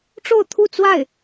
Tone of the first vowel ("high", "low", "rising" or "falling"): falling